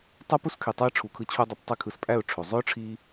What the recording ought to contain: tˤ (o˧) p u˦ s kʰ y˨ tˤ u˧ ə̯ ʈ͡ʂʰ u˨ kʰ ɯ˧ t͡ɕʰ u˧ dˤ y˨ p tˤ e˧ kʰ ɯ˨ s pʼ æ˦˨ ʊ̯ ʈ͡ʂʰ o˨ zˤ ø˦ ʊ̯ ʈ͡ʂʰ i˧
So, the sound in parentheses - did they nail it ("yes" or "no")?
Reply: no